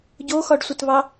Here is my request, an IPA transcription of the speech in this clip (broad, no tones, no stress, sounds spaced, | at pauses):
ɟ o x ɒ ɖ sʷ ɘ t β ɑ